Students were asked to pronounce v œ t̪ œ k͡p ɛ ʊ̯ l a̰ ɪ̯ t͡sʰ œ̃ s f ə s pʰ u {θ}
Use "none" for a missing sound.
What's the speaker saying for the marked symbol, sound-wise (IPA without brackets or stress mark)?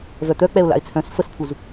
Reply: z